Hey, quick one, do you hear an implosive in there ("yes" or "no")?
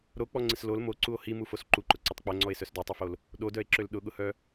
yes